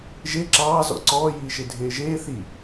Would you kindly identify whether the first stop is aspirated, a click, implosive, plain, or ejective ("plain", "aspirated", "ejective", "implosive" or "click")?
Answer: click